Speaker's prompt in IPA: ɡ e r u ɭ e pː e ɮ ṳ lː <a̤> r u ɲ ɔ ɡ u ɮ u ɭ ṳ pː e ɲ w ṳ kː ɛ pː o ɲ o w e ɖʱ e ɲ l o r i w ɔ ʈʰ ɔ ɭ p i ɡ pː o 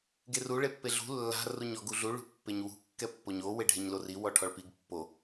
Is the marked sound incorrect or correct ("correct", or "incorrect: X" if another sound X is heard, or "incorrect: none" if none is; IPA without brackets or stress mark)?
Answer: correct